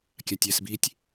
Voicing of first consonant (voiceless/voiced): voiceless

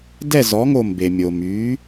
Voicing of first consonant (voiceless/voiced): voiced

